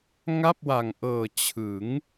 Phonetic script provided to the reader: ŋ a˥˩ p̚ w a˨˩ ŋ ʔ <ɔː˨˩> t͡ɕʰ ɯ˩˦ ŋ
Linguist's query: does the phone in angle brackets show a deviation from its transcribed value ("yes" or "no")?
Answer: yes